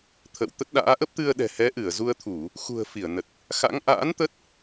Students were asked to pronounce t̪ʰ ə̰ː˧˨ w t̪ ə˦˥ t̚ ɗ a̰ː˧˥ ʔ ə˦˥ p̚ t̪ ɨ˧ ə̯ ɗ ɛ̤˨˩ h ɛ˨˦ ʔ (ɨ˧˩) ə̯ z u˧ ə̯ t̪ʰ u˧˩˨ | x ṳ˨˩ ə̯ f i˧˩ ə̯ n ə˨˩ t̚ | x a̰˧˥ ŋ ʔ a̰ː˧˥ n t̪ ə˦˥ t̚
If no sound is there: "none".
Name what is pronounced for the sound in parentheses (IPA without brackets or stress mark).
ɨ˧˩